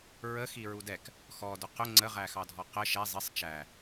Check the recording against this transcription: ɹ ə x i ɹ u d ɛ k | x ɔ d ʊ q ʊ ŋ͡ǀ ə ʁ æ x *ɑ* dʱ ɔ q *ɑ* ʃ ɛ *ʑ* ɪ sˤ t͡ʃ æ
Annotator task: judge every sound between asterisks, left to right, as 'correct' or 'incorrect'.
correct, incorrect: ə, incorrect: zˤ

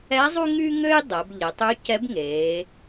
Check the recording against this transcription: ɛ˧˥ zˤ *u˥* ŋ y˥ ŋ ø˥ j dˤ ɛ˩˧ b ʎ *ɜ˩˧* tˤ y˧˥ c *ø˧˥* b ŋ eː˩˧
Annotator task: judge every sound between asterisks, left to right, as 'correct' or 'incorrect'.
correct, incorrect: ɛ˩˧, incorrect: ɛ˧˥

